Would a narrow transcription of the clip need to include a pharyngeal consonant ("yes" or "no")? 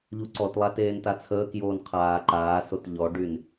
no